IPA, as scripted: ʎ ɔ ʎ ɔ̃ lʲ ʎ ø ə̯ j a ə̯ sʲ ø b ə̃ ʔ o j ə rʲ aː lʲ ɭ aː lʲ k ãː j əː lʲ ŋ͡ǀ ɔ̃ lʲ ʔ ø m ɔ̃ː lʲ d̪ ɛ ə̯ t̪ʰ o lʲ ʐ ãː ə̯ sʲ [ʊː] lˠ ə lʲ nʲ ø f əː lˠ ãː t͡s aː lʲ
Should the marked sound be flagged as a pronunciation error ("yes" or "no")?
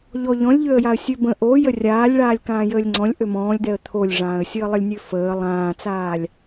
yes